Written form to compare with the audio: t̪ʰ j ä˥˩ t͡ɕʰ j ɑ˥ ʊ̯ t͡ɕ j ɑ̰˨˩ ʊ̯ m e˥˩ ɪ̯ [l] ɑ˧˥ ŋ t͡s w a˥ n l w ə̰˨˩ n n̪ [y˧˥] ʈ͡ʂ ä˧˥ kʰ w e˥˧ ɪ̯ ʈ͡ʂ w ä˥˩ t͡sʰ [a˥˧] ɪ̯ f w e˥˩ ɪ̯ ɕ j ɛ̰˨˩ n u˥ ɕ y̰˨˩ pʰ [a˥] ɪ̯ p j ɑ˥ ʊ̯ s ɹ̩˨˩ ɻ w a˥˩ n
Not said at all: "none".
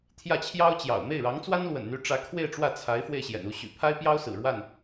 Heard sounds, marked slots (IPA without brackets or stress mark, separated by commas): ɻ, y˧˥, a˧˥, a˥